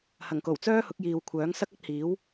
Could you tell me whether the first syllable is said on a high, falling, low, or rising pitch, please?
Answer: low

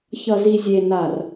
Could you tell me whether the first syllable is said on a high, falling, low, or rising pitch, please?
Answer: low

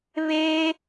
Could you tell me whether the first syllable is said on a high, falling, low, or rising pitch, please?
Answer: high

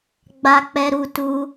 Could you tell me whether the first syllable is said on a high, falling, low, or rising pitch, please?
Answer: high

